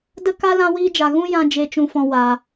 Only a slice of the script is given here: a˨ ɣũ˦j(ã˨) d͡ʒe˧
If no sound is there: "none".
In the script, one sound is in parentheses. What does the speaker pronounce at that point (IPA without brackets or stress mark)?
ã˧